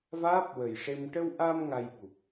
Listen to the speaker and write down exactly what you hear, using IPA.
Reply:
v aː˦˥ p̚ w ə˨˩ j ʂ e˧ m ʈ ə˧ w ʔ a˧ m ŋ a˧ j ɓ u˨˩ p̚

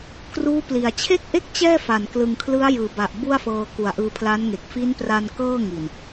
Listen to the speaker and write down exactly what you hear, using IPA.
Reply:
k r uː˦˥ p l i˨˩ a̯ t͡ɕʰ e˥˩ k̚ ʔ e˥˩ k̚ t͡ɕ ɛː˥˩ f a˨˩ n k l ɯ˨˩ ŋ kʰ l ɯ˦˥ a̯ j ɯː˩˦ b a˨˩ ʔ b u˥˩ a̯ f ɤː˧ k u˨˩ a̯ ʔ ɯː˧ pʰ l a˦˥ n ŋ e˨˩ k̚ f i˦˥ n p r a˧ n k ɤː˥˩ ŋ i˨˩ n

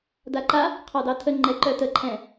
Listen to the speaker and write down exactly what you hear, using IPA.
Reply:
d a ǃ a | qʰ ɑ d ɑ tʰ ə ŋ͡ǃ ɛ ǃ œ t ə ǃʰ ɛ̃

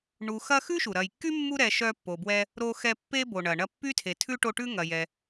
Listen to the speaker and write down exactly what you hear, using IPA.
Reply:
ɳ u˨ x ɐ˦ x ʉ˥ ʃ u˩ ɾ ɐ˨ j kː y˥ mː u˦ ɾ ɛ˨ ʃ œ˦ pː o˨ b w ɛ˦ | ɾ o˦ x ɛ˦ pː e˥ b o˩ ɳ ɐ˩ ɳ ɐ˦ pː y˥ tʰ e˨ tʰ ʉ˥ ʈ o˦ ʈ ʉ˥ ŋ ɐ˨ j ɛ˨

